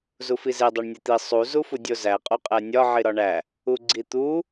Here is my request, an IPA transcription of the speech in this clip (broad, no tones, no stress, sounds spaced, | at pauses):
z u f i z e dˤ o ɳ nʲ e t̪ i sˤ u z u f u dʲ o z æ qʼ o qʼ æ nʲ ɒ ʕ i ɾ ɒ ɳ æ | u ɡ͡ǀ i t̪ u